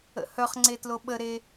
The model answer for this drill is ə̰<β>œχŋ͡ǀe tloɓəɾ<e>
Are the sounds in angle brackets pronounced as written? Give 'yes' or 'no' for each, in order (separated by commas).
no, yes